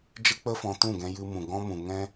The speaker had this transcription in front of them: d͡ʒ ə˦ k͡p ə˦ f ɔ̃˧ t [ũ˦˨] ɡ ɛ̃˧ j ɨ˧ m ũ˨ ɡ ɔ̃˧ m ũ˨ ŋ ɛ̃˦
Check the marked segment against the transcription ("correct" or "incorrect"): correct